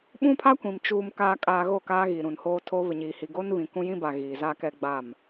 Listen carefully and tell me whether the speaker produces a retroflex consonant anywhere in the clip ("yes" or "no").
no